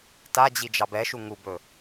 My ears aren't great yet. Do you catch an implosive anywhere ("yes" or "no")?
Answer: no